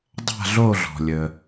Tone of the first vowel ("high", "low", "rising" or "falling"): falling